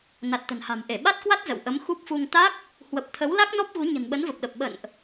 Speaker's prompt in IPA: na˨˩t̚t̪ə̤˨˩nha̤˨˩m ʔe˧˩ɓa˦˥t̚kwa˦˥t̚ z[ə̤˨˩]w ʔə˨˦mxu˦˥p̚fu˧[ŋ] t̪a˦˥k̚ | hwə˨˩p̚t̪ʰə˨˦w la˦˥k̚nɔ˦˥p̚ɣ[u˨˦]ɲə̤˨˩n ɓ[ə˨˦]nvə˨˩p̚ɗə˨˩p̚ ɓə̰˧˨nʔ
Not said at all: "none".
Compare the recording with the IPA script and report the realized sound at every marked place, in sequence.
ə̰˧˨, ŋ, u˨˦, ə˨˦

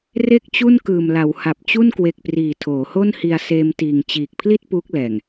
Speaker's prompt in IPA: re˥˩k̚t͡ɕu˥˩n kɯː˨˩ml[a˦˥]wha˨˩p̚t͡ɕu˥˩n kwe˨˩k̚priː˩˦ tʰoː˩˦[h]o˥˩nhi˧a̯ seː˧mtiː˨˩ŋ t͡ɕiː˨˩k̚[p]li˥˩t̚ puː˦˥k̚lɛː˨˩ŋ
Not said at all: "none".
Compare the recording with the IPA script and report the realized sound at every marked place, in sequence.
a˩˦, h, pʰ

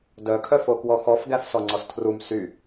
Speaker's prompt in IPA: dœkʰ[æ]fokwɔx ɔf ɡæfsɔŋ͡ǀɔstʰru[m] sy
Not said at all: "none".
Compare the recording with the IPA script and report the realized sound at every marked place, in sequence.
œ, m

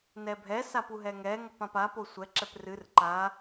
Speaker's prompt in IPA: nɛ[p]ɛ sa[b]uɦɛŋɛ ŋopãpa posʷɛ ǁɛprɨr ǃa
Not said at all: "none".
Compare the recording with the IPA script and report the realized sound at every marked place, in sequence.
bʱ, p

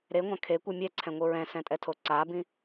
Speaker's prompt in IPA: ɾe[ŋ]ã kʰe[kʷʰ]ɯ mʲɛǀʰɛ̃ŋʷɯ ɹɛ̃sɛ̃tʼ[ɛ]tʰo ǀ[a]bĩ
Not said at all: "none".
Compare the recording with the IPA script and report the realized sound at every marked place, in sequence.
ŋʷ, kʷ, ɛ, a

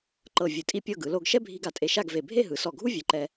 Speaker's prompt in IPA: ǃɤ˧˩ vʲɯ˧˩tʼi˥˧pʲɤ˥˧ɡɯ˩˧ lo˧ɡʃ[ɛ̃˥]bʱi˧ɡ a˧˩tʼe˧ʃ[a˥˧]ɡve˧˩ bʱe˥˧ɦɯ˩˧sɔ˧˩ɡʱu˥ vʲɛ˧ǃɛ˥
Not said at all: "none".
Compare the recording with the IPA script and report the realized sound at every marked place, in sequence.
ɛ˥, a˥˧

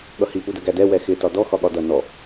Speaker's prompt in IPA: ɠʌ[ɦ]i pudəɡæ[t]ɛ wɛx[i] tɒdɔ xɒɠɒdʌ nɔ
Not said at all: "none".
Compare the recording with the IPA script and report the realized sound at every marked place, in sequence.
h, d, ɪ

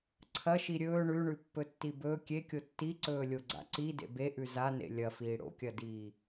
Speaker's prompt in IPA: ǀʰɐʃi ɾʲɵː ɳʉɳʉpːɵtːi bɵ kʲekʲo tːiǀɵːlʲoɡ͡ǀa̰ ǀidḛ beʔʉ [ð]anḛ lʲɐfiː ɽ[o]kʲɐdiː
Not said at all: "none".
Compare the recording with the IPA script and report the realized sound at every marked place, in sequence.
z, o̰

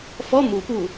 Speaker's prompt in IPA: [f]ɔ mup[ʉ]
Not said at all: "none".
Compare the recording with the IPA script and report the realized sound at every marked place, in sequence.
f, u

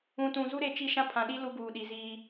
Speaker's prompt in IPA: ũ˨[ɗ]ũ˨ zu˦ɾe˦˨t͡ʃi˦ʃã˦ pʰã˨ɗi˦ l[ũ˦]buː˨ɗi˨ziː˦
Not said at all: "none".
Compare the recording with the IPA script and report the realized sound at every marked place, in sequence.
t, u˦

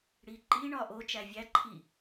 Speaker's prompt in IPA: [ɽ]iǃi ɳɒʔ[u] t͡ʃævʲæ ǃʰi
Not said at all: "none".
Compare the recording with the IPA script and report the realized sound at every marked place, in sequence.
ɽ, o

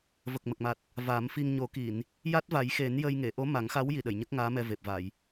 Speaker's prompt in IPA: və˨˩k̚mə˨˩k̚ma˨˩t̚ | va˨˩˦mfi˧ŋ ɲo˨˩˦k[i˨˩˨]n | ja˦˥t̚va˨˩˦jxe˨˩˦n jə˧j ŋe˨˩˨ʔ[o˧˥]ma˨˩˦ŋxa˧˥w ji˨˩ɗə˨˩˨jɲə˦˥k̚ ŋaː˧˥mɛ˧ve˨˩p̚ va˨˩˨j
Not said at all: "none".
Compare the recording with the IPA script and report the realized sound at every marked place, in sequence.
i˨˩˨, o˧˥

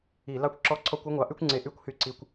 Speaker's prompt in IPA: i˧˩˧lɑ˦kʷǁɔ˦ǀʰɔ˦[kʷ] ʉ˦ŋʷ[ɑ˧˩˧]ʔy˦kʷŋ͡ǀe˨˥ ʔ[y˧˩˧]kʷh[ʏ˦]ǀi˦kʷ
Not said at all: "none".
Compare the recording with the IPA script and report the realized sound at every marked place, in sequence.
kʷ, ɑ˨˥, y˦, y˦

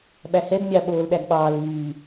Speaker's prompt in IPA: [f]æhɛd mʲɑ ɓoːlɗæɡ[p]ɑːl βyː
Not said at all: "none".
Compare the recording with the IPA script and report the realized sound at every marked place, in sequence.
ɓ, ɓ

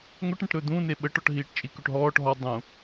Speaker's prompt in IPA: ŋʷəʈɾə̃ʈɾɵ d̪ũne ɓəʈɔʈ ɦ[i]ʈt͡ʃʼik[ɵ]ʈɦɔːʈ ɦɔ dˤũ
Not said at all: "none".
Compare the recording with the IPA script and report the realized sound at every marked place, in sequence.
iː, ɵ

